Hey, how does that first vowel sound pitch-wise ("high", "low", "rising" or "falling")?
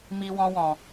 high